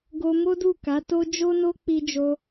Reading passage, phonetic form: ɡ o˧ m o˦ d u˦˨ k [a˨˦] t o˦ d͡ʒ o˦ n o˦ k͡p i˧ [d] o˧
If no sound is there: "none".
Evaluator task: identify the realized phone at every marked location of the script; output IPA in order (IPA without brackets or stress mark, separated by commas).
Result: a˨˦, d͡ʒ